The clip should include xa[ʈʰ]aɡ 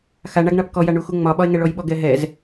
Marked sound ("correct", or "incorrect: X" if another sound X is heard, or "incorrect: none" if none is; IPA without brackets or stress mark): incorrect: ɳ